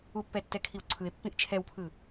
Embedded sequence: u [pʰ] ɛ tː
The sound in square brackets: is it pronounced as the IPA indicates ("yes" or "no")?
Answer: no